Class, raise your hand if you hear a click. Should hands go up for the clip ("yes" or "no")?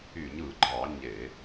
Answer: yes